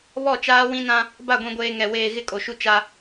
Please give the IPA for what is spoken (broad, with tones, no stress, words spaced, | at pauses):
βɔ˦˨t͡ʃaː˦wĩ˦nã˦ | ba˦˨ɡʷĩ˨ɡʷeː˨ ŋɛ˨ weː˨ ɣɪ˦kʼo˨ʃu˦ t͡ʃa˦